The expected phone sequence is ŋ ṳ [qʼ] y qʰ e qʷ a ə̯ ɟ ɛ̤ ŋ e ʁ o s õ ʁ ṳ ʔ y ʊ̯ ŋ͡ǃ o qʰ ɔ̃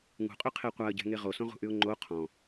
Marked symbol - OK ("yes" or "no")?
yes